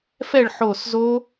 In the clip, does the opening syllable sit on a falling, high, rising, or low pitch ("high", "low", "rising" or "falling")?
falling